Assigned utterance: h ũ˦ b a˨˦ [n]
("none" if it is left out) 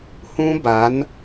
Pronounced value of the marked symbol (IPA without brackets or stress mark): n